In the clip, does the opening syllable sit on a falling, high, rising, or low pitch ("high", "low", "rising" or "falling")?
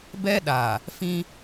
high